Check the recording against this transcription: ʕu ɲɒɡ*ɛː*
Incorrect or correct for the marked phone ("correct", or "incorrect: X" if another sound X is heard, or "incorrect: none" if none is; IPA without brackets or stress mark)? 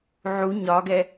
incorrect: ɛ